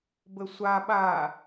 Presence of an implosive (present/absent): present